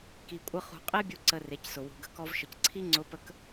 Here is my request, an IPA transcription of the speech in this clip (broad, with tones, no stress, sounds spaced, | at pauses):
k i˧ kʷʼ ə˥ χ ṳ˧ qʼ e˥ bʲ u˧ ǀ ə˧ r e˩˧ c s ʊ˩ w ṳ˩ ɡ ə̤˧ k ɔ˧ v ʃ ə˩˧ c ǀʰ i˥ ŋ͡ǀ ʊ˧˥ p ə˧˥ k